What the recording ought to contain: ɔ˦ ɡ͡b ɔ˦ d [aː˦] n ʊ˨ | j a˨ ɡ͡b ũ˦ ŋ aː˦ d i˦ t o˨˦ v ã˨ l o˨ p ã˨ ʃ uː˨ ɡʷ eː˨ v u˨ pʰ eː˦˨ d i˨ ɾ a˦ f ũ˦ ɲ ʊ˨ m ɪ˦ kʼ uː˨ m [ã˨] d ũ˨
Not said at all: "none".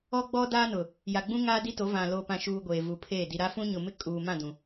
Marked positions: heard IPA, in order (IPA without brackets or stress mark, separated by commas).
aː˦, ã˦˨